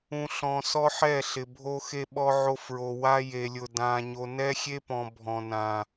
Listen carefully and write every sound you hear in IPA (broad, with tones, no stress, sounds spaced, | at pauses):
ũ˨ ɬ ɔ̃˨ s ɔ˦ ħ ɛ˦˨ ɬ ɪ˨ bʱ o˦ x e˦ ɓ ɔ˦ ʕ o˦ f ɹ o˨ w a˦ j e˨ lʲ ʊ˨ d ã˨ ɲ o˨ n ɛ˦ xʲ e˦ p ɔ̃˨ bʱ ɔ̃˨ n ã˨